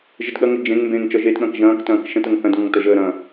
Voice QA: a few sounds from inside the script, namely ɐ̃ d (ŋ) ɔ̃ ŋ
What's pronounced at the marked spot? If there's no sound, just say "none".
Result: ŋ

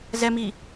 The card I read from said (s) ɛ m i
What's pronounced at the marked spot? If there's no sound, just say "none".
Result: z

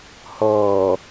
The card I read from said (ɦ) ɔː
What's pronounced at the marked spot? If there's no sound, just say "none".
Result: h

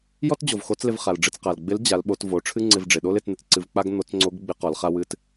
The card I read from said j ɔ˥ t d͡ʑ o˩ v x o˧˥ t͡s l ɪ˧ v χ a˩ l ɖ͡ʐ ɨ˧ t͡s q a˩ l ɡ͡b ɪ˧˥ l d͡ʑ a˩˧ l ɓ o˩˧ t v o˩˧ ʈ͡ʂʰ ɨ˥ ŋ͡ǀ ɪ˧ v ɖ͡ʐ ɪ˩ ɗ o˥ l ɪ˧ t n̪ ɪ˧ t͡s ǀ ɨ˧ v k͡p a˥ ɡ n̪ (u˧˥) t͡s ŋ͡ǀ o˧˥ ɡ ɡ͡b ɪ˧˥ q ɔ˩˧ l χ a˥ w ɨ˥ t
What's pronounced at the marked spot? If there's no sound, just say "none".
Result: o˧˥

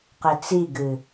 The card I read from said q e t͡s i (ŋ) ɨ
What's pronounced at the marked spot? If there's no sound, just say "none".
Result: ɡ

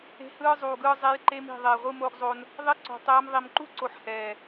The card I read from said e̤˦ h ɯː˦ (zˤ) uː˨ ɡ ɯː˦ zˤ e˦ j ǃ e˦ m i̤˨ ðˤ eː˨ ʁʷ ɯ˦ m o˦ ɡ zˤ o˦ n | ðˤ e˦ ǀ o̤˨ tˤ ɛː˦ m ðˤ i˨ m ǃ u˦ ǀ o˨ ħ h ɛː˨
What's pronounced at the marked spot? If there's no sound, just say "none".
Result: zˤ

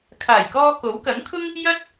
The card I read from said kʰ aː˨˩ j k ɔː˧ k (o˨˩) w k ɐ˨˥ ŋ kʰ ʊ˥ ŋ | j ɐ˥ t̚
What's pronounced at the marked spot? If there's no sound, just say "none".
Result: o˨˥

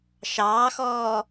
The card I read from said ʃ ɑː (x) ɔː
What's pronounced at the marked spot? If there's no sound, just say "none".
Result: x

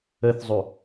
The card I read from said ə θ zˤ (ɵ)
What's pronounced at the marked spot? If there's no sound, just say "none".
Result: ɵ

